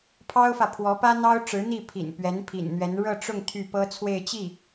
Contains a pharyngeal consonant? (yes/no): no